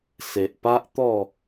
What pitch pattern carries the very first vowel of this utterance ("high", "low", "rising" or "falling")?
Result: low